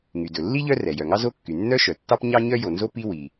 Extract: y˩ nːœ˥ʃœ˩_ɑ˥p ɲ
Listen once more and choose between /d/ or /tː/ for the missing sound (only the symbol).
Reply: tː